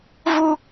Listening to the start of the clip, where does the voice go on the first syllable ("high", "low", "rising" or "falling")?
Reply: high